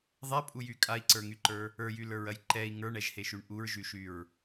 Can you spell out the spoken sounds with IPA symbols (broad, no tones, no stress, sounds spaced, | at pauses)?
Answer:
ðˤ ɛ pʼ u j y kʼ a i̯ ǀ ə˞ ŋ y ǃ ə˞ | ə˞ j y l ə˞ ɹ ɐ j ǃ ɛ i̯ ŋ ə˞ ɳ ɛ ʒ h e ʃ y ɳ ʔ u ɹ ʒ y ʃ y ɹ